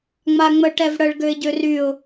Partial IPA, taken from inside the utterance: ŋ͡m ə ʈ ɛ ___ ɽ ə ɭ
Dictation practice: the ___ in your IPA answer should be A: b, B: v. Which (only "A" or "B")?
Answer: B